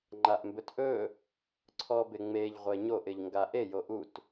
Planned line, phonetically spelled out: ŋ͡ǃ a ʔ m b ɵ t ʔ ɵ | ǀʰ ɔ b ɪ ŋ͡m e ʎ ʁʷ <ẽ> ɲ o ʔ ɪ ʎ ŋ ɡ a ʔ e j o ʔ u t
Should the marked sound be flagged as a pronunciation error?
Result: yes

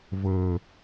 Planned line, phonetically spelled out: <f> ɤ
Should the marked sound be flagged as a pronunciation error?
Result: yes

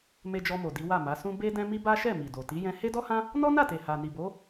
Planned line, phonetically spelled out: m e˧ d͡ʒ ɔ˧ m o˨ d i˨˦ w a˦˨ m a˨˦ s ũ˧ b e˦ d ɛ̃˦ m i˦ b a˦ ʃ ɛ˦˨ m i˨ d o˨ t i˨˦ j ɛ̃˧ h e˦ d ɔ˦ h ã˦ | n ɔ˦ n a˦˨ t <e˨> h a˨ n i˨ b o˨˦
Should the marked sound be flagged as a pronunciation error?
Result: no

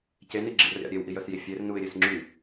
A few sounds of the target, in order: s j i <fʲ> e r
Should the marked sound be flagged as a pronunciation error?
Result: no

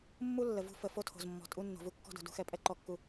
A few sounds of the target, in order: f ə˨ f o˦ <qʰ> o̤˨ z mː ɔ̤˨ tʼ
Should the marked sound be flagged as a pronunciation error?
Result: yes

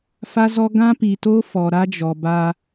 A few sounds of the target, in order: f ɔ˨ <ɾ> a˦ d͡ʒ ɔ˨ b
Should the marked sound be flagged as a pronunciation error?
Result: no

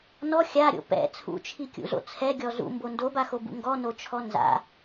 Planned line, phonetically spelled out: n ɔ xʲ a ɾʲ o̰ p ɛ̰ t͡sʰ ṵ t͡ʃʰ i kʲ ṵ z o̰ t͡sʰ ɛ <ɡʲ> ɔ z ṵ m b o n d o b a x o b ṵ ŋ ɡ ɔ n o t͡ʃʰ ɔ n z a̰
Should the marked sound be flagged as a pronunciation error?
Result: no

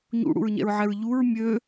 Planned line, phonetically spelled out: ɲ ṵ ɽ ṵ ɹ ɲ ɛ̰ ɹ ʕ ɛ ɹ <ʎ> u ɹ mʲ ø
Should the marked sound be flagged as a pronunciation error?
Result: no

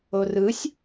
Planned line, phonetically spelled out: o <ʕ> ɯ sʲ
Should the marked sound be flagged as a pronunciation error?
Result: yes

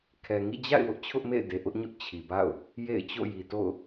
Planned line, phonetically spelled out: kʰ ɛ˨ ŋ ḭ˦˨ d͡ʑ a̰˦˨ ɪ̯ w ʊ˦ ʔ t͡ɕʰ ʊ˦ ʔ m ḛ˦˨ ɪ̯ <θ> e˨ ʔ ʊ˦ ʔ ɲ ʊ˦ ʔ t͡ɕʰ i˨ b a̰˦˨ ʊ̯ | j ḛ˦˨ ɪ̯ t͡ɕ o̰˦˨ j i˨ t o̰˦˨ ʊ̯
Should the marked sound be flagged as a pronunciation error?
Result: yes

